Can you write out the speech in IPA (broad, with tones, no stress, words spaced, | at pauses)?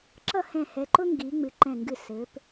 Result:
ǁʌ˥˧hɛ̃˧˩hɛ˩˧ ǃʊ˥ŋɡi˩˧ ŋ͡mɨ˩˧ǃɛ̃˧˩ŋɡɨ˧˩ sɘ˩˧p